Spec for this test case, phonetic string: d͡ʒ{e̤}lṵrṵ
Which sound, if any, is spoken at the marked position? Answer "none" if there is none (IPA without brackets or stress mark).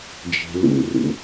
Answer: e̤